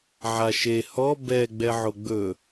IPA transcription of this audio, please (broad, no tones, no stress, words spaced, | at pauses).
ʕaʃe hɔ bɛ ɡ͡bɛʕoɡ͡bɵ